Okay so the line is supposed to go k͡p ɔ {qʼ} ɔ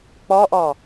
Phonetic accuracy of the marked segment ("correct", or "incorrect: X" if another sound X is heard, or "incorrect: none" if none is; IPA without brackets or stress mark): incorrect: ʔ